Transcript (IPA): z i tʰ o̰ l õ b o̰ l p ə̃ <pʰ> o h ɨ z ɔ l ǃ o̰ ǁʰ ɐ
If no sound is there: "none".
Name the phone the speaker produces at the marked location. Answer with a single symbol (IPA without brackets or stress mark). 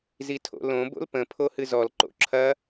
pʰ